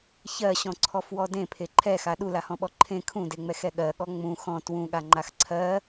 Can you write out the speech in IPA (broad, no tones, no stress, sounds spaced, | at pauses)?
ç ɜ ɕ ɔ̃ ǀʰ ɔ f w ɔ d ẽ pʰ e ǃʰ ɛ x a ɗ u l a h ɔ̃ ɓ ɔ ǃʰ ẽ kʰ ũ d e ŋ͡m ɛ x ɛ ɠ ɜ ɠ ɔ ŋ͡m ũ x ɔ̃ t w ũ ɠ a ŋ͡ǃ a x ǀʰ ɜ